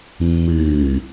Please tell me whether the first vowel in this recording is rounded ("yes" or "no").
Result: no